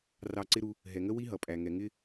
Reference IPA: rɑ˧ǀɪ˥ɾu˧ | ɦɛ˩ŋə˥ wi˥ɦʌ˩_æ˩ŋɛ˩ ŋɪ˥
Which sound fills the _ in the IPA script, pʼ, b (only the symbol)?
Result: pʼ